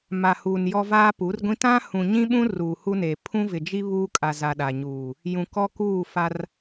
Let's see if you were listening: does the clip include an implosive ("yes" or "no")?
yes